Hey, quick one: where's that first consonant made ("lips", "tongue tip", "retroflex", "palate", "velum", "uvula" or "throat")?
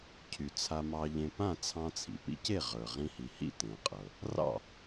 palate